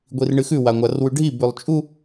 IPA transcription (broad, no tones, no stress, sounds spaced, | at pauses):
ɡʷ i r ɳ ɨ x ʉ w a ŋʷ a r w ʉ ɖʱ i b ʉ lˠ t͡ʃʼ u